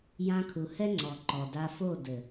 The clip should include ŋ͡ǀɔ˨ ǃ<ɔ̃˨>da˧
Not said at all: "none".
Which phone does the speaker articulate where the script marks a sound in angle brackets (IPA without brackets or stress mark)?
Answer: ɔ˨